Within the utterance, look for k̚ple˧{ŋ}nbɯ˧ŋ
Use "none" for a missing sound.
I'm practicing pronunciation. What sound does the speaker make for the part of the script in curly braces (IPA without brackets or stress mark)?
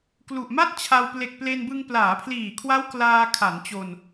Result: none